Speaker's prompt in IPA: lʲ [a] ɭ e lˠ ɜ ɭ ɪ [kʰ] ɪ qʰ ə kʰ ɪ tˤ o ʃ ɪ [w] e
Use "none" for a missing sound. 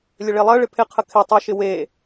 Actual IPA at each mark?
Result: ə, pʰ, w

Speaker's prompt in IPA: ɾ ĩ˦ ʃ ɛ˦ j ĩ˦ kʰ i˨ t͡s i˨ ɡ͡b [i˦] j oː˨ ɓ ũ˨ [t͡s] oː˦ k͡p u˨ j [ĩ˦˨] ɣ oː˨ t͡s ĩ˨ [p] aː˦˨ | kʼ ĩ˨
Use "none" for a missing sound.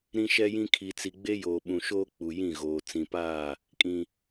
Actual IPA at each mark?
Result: e˦, ʃ, ĩ˦˨, p

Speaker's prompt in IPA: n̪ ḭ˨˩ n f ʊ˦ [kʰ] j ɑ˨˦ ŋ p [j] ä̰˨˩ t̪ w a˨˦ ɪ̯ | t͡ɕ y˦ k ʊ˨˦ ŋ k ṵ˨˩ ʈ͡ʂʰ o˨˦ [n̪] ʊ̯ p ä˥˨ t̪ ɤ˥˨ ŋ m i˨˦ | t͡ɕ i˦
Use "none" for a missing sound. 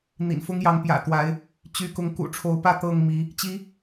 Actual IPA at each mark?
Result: ŋ, j, none

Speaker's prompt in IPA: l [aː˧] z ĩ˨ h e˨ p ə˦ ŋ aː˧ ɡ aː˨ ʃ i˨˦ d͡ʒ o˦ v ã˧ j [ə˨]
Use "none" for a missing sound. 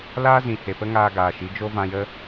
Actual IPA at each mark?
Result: aː˦, ə˦

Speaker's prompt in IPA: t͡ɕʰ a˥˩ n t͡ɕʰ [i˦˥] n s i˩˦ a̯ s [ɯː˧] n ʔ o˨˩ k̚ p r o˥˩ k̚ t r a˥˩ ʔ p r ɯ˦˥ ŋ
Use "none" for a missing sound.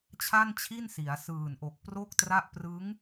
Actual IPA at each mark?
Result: i˥˩, ɯː˨˩

